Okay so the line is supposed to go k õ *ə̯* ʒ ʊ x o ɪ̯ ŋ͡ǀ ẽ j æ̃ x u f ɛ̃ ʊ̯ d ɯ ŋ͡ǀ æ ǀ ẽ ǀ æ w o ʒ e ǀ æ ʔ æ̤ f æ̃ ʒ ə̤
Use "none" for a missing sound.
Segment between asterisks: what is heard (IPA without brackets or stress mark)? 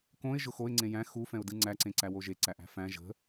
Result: ɪ̯